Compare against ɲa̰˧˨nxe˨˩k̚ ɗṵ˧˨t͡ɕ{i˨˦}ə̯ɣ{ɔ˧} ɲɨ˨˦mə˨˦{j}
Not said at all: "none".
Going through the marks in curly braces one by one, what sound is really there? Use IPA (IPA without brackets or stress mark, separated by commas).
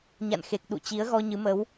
i˨˦, ɔ˧, w